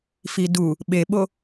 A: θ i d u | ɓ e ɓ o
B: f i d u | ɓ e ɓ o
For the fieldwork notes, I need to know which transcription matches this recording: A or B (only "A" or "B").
B